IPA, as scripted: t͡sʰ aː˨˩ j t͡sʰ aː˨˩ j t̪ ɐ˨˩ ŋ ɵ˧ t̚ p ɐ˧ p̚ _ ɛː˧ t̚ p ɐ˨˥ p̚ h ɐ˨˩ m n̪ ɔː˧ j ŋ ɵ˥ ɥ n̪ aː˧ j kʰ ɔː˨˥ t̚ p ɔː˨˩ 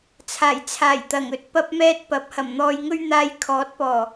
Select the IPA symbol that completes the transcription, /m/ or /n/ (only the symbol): m